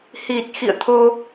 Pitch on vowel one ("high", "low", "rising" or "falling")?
low